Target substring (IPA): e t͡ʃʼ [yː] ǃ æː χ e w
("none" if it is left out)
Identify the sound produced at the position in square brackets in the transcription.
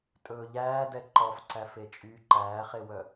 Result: yː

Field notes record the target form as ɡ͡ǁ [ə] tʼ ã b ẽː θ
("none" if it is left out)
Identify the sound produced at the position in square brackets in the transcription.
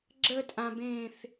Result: ə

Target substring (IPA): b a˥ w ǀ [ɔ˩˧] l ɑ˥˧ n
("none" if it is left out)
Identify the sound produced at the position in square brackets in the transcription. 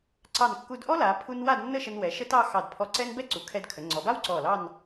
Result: ɔ˧˩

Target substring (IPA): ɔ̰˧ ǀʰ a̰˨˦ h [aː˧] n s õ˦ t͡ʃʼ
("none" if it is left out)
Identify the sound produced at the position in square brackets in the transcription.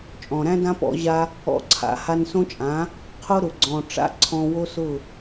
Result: a˧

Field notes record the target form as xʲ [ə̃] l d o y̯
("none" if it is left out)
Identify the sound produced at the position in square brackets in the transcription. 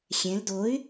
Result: ɛ̃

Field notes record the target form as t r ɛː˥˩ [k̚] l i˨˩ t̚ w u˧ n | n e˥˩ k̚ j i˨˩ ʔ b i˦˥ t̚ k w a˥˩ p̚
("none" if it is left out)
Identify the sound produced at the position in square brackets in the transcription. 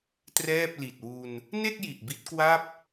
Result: p̚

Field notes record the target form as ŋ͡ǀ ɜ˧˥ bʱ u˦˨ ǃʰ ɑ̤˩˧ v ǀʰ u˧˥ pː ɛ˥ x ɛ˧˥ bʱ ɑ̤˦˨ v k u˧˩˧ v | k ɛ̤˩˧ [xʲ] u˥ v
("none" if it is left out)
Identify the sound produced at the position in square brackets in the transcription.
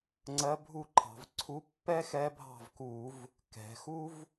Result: x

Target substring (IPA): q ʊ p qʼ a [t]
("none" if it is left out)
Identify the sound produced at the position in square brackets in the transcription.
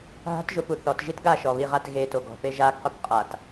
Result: t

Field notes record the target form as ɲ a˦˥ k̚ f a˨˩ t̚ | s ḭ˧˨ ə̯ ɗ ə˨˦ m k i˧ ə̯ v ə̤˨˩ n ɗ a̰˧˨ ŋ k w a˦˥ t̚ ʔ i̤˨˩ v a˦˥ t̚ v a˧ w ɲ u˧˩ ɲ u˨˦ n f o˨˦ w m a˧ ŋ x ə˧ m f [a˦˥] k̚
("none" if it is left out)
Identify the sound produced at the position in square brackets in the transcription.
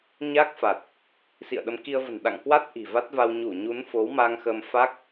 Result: a˦˥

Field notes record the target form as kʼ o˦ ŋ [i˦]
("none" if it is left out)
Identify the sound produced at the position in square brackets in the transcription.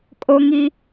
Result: i˦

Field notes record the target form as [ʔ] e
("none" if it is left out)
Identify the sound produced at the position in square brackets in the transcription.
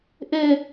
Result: ʔ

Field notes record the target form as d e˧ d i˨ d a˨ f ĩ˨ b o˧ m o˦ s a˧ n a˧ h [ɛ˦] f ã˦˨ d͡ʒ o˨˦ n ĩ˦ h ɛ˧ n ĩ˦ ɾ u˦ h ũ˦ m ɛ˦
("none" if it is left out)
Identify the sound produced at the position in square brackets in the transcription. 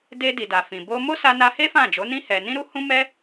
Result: e˦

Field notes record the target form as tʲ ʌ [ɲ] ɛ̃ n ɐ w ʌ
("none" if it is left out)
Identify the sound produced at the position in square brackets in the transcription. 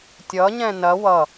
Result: ɲ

